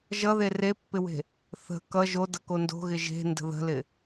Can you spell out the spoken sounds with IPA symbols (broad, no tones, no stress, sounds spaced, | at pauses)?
ʒ ʌ ð e r e pː ɪ w e̤ | θ ə̤ k ʌ ʒ o d ʌ k o n d o̤ ɣ ɪ ʒ e̤ n d ə̤ ð ə̤ l ɪ